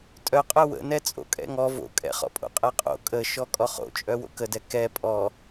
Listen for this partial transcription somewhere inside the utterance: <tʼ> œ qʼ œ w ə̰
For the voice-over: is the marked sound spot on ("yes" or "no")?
yes